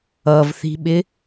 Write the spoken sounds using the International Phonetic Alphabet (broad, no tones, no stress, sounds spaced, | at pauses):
ʌ v θ i̤ ɓ ɪ